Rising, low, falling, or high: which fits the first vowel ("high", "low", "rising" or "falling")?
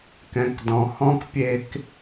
low